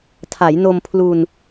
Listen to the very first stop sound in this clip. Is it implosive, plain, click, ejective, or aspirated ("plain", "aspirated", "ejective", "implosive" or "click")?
aspirated